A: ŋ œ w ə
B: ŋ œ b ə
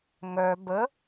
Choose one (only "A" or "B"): B